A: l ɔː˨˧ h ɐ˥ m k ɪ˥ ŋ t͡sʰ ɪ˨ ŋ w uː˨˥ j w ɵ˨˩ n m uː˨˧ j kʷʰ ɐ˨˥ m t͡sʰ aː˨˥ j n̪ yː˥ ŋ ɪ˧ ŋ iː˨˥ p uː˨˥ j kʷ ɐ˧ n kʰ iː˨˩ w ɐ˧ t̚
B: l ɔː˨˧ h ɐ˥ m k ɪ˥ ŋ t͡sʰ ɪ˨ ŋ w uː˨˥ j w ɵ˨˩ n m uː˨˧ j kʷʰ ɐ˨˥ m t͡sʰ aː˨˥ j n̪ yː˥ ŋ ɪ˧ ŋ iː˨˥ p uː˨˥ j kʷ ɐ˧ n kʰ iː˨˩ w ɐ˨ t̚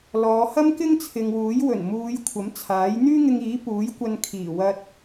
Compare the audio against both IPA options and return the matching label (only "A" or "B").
A